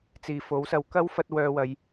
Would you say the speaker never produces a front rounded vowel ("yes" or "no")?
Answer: no